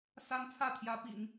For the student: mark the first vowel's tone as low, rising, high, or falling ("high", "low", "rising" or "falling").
high